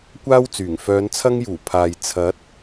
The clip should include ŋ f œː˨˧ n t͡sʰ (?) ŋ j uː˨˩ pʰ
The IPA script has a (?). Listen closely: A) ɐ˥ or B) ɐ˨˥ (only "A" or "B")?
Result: A